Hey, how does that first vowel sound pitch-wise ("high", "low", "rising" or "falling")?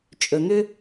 low